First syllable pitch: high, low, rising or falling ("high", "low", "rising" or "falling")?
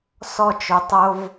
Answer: falling